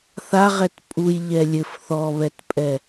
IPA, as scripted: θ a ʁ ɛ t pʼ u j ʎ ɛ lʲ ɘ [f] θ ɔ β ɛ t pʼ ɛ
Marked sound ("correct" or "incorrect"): correct